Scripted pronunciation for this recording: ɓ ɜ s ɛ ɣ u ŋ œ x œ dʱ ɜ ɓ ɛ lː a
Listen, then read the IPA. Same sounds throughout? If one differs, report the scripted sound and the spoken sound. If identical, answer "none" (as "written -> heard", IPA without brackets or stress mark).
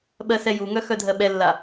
ɣ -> j